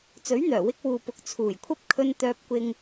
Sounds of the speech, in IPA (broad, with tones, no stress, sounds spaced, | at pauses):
t͡s ɵ˨˥ ɥ n̪ œː˨˩ w ɪ˧ k̚ w uː˨ p ʊ˨˥ k̚ t͡sʰ uː˨˩ j kʷʰ ɐ˥ p̚ kʰ ɵ˧ n t̪ œː˧ p̚ kʷ ɪ˧ ŋ